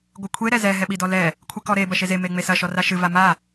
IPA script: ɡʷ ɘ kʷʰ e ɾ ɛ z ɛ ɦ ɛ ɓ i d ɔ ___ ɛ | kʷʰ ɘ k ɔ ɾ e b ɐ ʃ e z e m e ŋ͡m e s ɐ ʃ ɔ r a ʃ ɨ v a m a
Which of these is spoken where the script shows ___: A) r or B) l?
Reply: B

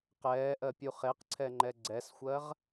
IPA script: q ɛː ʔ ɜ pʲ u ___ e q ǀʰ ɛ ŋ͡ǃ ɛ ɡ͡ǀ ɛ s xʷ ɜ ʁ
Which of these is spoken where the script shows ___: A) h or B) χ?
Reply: B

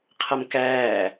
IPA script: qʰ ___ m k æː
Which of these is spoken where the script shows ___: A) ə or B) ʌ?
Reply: B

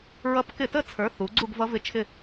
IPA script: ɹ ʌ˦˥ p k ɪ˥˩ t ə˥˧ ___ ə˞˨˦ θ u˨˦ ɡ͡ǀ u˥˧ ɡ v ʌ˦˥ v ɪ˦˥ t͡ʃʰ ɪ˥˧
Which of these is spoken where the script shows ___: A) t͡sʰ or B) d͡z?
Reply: A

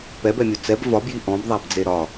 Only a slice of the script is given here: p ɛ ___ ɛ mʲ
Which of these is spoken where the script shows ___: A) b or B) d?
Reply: A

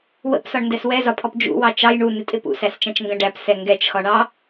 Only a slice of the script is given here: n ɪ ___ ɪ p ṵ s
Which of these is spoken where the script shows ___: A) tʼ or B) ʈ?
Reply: A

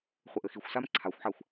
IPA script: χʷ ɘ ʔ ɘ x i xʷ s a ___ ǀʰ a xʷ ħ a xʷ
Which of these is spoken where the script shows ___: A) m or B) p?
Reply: A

